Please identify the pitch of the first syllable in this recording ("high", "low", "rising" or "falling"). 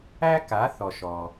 high